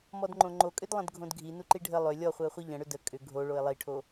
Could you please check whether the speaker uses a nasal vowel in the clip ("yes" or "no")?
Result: yes